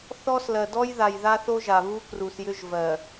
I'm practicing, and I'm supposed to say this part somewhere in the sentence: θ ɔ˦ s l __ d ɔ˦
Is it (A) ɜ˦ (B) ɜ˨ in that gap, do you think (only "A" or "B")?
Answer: B